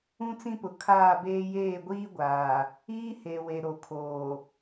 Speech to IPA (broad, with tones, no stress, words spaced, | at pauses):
ũ˦t͡sĩ˦pʊ˨ kʰaː˦˨beː˦ jeː˦˨ɡʷiː˦ɡʷaː˨ | iː˦he˨we˨ ɾo˨kʰoː˨